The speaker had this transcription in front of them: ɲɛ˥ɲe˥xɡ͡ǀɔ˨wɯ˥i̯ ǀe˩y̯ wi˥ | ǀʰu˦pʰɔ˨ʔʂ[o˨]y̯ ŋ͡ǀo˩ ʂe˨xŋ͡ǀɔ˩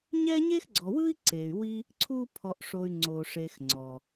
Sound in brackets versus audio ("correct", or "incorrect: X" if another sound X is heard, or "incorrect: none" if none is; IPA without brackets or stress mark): correct